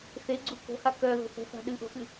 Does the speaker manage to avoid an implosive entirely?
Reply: no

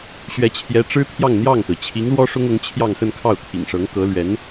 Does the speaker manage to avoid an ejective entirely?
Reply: yes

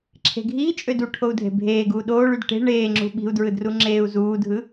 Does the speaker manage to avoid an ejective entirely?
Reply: no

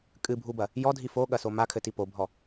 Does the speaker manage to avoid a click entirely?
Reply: yes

